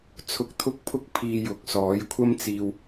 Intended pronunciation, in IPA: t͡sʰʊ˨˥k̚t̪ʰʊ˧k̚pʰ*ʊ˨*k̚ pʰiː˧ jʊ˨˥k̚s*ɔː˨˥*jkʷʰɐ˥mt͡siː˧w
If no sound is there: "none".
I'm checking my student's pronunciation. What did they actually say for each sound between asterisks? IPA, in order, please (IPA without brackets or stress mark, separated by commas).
ʊ˧, ɔː˨˥